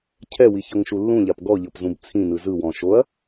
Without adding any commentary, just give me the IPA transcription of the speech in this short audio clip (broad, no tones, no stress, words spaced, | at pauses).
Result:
cʰɛwiçɤŋʃu lːũʎap ɡɔʎɤpzũb t͡sʰĩnɯ zɯwɔ̃ ʃoɐ̯